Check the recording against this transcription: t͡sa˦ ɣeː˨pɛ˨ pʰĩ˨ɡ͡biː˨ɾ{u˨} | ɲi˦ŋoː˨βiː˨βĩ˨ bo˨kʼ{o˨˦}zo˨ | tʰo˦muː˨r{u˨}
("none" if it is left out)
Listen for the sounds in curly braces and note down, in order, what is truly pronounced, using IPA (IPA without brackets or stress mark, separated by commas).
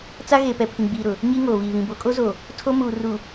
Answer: ʊ˨, o˦, u˨